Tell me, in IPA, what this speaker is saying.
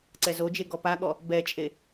ǀ ɛ z o d͡ʒ e ɡ ɔ p a ɠ ɔ | b ɛ t͡ʃʼ e

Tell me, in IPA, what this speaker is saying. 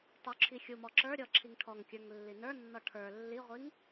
tˤ u ǁʰ i xʲ u m ɔ ǁ ə˞ ɾʲ ɔ ǁʰ i ŋ ʈʰ ɔ ŋ kʲ ə˞ ŋ lː i n ə˞ nː ɔ ʈʰ ə˞ lː i ʁʷ i ŋ

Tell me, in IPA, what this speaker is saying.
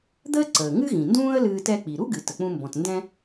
d̪ əː˥ ǀ əː˩ ŋ ɨ˥ ɣ ĩ˩ n d ũː˥ ə̯ l ɨː˧ t ɛ˧ k͡p i˩ ɾ u˥ ɡ ɨ˩ t ə˩ k͡p ũ˧ m b ɔ̃˩ t n d ɛ̃˧

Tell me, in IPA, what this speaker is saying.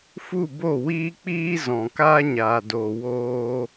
f u˦˨ b o˦˨ w iː˦ k͡p iː˦ z ɔ̃˨ k aː˦ ɲ aː˨ d oː˨ w oː˦

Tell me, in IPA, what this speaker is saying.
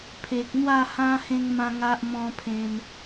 pʰ e˨ k̚ n̪ w a˥˧ h ã˦ h ẽ˦ ŋ m ã˦ ŋ a˦ ʔ m ɔ̃˧ pʰ ẽ˧ m

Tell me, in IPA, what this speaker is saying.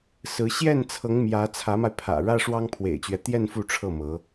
s ɹ̩˧˥ ɕ j ɛ˥˩ n t͡sʰ ɤ˧˥ ŋ m j ä˧˥ t͡sʰ ä˧˥ m a˧ ɪ̯ pʰ ä̰˨˩ ɻ ä˥ ʂ w ɑ˥ ŋ pʰ w ḛ˨˩ ɪ̯ t͡ɕ ɥ ɛ˦ t̪ j ɛ˥˧ n f u˥˧ ʈ͡ʂʰ ɤ˥˩ m ɤ˧˥

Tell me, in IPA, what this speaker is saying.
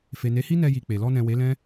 f e˨ n e˨˦ h i˦ n ɛ˧ j i˨ k͡p e˨ l ɔ˧ n ɛ̃˨ w e˨˦ l ɛ̃˦

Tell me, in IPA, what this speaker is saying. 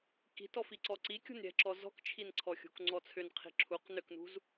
k i̤ t ɔ f i ǀ ɔ ǀ i kʲ ṳ n ɾʲ ɛ̤ ǁ ɔ z ɔ̤ k t͡ʃʰ i n ǀʰ ɔ xʲ ṳ k ŋ͡ǀ ɔ t͡sʰ ʏ n qʰ i̤ ǁʰ u q n ʏ k n ṳ z

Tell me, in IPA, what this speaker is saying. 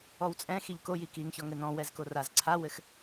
ɔ w t͡sʼ ɛ̃ x i ʎ k o j i k i ŋ ç ɔ ŋ ɘ n ɔ̃ w ɛ z k o r a z ǀʰ a w ɘ x

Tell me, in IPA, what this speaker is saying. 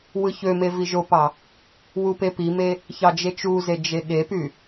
w ɯ ç ø m e v i ʒ o p ɑ | w u p e p i m e | ç ɑ d͡ʒ e t͡ʃ u z e d͡ʒ e ɠ e p y

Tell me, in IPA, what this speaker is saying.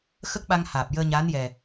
x ə˦˥ k̚ ɓ a˧ ŋ h aː˨˩ p̚ j əː˧ ɲ aː˧˥ n j ɛ˨˩

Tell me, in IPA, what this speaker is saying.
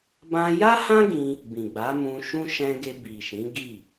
b ã˧ j a˦ h ã˦ ɡ ĩ˧ | b ĩ˨ ɡ͡b a˨˦ m ũ˧ ʃ ũ˦ ʃ ɛ̃˧ ɡ e˧ b i˨ ʃ ĩ˨˦ ɡ i˦˨

